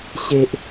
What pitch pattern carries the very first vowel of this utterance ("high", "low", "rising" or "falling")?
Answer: low